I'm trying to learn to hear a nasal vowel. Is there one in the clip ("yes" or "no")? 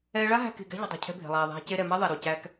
no